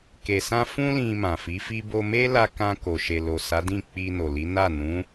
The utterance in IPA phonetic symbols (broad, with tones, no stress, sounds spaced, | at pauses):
k e˨ s ã˧ f ũ˦ l ĩ˧ m ã˨ f i˨˦ f i˦ b o˧ m e˦ l a˧ k ã˧ k o˨ ʃ e˨ l o˨ s a˨˦ d ĩ˦˨ k͡p i˧ n o˨ l i˨˦ n a˦˨ n ũ˨˦